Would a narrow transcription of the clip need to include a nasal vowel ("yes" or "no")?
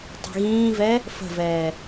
yes